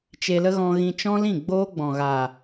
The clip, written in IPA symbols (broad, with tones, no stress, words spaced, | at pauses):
t͡ʃe˧lə˦ɣɔ̃˧ ɣĩ˧ t͡ʃɔ̃˦lĩ˦˨ ɡ͡boː˦ɡ͡bɔ̃˨ɣa˨